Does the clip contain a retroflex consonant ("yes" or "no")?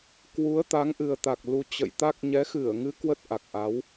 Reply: no